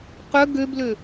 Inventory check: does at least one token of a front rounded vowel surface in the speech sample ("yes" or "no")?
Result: yes